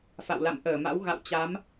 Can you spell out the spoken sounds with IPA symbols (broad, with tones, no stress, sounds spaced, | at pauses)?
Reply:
f a̰˧˨ w l a̰˧˨ m ʔ əː˧˩ m a̰˧˥ w ɣ a̰˧˨ w t͡ɕ a˨˦ m